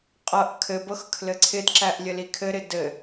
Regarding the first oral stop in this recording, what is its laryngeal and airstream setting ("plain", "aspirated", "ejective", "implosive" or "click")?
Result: ejective